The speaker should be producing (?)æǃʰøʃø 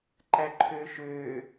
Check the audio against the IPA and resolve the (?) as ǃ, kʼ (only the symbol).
ǃ